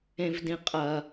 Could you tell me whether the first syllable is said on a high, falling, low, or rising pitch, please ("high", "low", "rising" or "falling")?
low